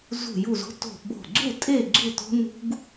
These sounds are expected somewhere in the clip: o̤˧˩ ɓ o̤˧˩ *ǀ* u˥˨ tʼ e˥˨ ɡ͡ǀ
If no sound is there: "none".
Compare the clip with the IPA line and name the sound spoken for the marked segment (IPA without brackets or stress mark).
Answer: ɡ͡ǀ